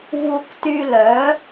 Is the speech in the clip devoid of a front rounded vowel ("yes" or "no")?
no